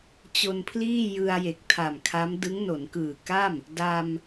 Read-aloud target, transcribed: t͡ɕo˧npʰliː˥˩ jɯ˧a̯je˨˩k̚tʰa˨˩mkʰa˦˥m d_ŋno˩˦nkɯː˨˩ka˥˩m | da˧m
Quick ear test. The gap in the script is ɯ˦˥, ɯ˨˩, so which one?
ɯ˦˥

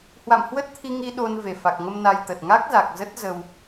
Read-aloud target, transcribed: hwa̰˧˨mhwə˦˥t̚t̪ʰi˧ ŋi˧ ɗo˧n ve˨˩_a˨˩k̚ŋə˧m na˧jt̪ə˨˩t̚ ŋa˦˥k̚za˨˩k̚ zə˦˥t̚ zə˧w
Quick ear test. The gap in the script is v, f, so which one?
f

